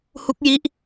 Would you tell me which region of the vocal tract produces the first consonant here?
throat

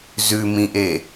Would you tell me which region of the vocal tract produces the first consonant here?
tongue tip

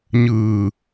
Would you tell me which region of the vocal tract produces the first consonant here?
palate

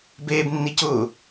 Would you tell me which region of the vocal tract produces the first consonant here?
lips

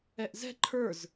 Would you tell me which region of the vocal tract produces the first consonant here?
throat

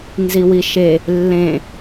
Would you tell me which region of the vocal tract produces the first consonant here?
tongue tip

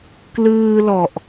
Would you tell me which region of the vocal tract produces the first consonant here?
velum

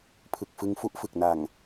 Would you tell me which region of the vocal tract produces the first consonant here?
lips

